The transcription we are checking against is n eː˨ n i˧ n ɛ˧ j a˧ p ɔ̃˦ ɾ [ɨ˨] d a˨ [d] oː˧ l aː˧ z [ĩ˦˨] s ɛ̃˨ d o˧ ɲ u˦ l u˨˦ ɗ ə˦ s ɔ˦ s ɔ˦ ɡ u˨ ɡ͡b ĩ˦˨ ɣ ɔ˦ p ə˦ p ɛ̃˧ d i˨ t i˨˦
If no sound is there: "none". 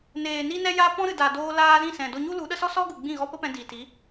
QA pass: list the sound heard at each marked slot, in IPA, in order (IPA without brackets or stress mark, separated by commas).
ɨ˨, d, ĩ˦˨